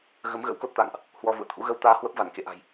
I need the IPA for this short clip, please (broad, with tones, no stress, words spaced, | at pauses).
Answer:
ɣə˨˦m ɣə̰˧˥wko˦˥t̚t̪a̰ː˧˨ŋʔ | hwɔ˧vṵ˧˨ə̯t̪ʰṵ˧˥ ɣə˧wt̪aː˧ hwə˦˥p̚va˧˩nkḛ˧˨ʔa̤˨˩j